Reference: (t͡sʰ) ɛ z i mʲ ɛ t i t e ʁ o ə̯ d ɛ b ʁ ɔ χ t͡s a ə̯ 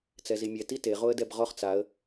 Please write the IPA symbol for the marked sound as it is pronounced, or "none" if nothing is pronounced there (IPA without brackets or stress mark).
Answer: t͡s